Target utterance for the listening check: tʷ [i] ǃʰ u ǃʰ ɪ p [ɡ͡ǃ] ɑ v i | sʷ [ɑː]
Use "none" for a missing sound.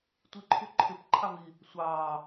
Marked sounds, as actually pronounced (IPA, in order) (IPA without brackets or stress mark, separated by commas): i, ǃʰ, ɑː